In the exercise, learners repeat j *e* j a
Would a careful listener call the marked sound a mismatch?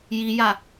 yes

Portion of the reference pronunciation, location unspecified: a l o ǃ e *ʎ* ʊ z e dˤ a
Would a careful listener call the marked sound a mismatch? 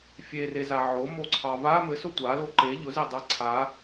no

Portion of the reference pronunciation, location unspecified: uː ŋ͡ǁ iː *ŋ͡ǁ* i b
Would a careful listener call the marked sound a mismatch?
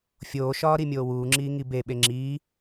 yes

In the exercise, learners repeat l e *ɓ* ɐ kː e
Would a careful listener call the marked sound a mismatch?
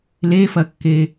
yes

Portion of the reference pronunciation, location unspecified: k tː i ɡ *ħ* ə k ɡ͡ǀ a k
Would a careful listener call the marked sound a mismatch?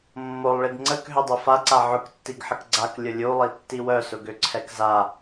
no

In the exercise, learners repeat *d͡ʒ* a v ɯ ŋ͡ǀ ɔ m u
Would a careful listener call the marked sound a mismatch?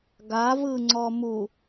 yes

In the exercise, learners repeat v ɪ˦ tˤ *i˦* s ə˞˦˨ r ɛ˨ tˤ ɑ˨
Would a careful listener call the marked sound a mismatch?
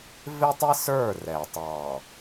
no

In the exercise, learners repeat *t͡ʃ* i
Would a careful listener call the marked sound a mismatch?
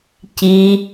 yes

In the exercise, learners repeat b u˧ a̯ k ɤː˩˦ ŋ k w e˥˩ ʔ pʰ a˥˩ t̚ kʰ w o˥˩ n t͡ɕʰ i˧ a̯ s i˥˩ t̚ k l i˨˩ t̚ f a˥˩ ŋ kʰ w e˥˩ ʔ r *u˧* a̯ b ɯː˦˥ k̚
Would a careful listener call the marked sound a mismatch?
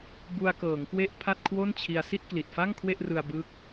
yes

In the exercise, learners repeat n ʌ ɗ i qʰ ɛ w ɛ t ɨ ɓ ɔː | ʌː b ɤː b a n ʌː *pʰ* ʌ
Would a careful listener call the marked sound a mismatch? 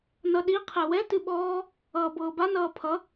no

